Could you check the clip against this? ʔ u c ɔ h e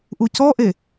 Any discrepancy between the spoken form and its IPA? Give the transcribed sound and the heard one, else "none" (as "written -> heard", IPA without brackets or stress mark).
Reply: h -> ʔ